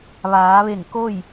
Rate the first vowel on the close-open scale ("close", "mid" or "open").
open